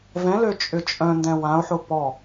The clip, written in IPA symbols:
v ɛ̃ l ø t͡ʃʼ ʏ t͡ʃʼ œ̃ n d ɛ̃ w ã ʊ̯ ħ ʊ p ɔ

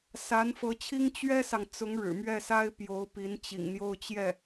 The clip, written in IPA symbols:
s a˧˥ n f ɤ˧˥ t͡ɕʰ i˥ ŋ t͡ɕ ɥ ɛ˥ s ɑ˨ ŋ t͡s ʊ˧˥ ŋ ɻ ɻ̩˨˩ m ɥ ɛ˥˩ s a˥ ɪ̯ p j o˧˥ ʊ̯ p i˧˥ n t͡ɕ ḭ˨˩ ŋ n̪ j o˥˧ ʊ̯ t͡ɕ j ɛ˥˩

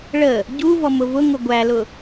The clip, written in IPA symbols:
ɭ ə | ɟ u v ɔ m ʊ v ʊ ŋ ʊ ɡʷ æ l ʊ

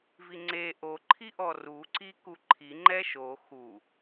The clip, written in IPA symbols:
v i ŋ͡ǀ e ʔ o ǃʰ i ʔ ɔ r u ǀ i k u ǃʰ i ŋ͡ǃ ɛ ʃ o x u

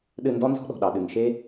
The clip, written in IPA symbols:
ɗ ɨ˦˨ n d ɔ˦˥ n z ɔ̤˦˥ ɗ ɔ̤˩ ɗ ɑ˩ ɗ ɨ˩ ŋ ʃ e˦˥

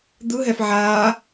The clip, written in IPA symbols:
d̪ ɯ ɦ ɛ f ʕ aː

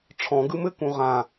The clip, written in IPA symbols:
ʈ͡ʂʰ ɔ̃ ɡ ɯ m ɘ k ũ ʁ ã

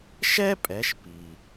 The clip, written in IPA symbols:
ʃ ɛ˥ pʼ ɛ˩˧ ʃ p i˩

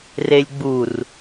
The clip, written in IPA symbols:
r e lʲ ɡ͡b u r

